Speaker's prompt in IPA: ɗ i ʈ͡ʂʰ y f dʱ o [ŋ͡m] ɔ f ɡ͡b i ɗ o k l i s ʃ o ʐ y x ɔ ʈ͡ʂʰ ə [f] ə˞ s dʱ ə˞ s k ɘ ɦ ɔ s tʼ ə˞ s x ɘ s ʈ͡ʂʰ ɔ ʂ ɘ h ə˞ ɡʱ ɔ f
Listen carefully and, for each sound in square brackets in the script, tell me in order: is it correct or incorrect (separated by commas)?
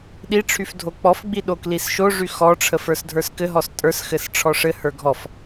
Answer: incorrect, correct